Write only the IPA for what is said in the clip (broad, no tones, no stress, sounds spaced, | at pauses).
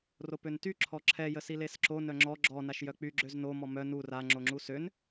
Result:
r o p ø n t y ǁʰ ɔ ǁʰ ɛ j ə s i l e s ǁ o n œ ŋ͡ǁ ɔ ɡ͡ǁ ɔ n a ʃ j œ k͡p y ɡ͡ǁ ø z n o m ɔ m œ n u r a ŋ͡ǁ o ŋ͡ǁ u s ø n